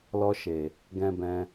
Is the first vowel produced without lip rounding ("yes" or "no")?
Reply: no